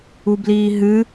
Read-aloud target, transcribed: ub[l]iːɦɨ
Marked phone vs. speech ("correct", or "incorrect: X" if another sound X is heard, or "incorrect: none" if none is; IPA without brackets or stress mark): correct